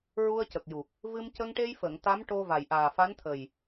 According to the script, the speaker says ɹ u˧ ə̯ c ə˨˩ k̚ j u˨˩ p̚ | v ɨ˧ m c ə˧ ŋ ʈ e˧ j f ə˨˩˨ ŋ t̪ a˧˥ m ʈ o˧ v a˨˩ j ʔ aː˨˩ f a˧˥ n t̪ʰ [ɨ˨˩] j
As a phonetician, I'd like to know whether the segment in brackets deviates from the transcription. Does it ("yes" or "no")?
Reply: yes